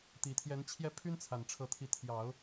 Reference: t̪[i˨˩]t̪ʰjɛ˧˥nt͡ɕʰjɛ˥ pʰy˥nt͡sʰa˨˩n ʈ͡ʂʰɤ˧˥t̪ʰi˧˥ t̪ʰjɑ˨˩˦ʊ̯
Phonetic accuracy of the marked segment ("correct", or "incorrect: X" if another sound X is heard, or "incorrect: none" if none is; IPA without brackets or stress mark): correct